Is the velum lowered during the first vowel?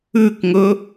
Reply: no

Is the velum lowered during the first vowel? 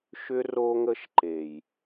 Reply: no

